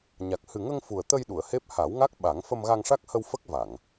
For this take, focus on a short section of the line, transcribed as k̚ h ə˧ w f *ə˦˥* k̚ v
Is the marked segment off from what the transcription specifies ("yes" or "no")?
no